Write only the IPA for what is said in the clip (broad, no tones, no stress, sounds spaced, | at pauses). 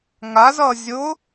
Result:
ŋ a z ʌ zʲ ʊ